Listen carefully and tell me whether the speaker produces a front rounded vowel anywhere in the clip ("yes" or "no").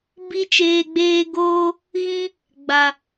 no